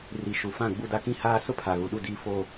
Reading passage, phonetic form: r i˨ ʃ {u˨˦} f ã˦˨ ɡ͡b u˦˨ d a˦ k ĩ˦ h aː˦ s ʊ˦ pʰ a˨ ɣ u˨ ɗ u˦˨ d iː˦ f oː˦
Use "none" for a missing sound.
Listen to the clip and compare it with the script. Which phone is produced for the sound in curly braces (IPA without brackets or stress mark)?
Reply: u˨